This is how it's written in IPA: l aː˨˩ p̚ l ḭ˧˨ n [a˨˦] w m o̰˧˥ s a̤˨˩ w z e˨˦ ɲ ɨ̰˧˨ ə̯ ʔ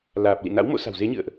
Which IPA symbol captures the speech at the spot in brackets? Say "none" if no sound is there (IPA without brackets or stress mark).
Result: a̰˧˥